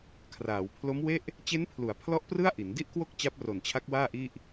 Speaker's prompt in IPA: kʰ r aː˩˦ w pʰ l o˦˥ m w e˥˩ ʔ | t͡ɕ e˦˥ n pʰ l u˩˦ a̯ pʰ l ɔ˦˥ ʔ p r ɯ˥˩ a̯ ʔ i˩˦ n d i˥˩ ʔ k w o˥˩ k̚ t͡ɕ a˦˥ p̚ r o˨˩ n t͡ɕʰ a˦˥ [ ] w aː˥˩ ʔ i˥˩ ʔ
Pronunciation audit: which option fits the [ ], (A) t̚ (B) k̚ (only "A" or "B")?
B